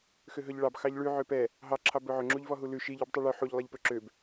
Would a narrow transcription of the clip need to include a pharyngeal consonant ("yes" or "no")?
yes